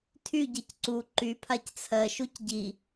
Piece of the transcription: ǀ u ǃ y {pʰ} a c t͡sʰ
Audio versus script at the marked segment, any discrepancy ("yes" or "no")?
no